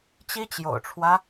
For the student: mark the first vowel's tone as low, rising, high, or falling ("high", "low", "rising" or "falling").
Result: high